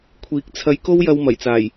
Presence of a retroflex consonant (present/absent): absent